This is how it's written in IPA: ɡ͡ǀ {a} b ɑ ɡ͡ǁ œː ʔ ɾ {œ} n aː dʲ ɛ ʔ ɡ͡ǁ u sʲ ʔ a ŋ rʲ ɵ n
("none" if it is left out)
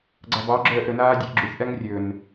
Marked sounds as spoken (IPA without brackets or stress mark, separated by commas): a, ɵ